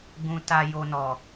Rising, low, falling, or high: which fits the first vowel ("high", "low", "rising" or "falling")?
low